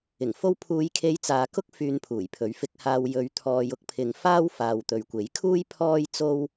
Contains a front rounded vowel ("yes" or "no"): yes